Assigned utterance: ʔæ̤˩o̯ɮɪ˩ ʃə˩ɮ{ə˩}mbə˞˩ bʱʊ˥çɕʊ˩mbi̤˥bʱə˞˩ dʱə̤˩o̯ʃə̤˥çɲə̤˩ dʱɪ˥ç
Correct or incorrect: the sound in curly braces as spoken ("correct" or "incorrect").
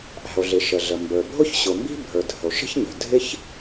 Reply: correct